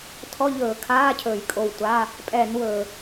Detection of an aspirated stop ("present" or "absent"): present